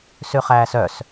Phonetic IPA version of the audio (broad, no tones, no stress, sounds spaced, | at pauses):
s ʉ χ æː s œ s